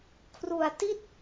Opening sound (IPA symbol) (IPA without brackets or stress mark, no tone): kʰ